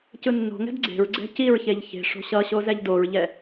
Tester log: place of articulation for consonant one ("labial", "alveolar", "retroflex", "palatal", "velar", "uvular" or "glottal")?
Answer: palatal